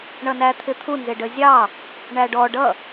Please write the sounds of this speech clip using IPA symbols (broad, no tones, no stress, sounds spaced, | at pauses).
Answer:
ɳ ʌ n æ t̪ʰ ɪ t̪ʰ u n z ɪ ɖ ə zʲ ɑ | ɳ æ ɖ ɔ ɖ ʌ